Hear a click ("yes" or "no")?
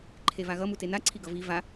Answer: yes